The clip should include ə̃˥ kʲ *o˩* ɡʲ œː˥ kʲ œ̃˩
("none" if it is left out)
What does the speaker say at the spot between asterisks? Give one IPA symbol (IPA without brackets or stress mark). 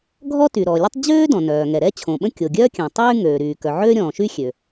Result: o˩